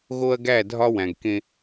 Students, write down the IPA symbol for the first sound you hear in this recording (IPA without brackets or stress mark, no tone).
ɣ